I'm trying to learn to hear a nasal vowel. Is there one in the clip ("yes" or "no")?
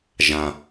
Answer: yes